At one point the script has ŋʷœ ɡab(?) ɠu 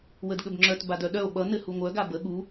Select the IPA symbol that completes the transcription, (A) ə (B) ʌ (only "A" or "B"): A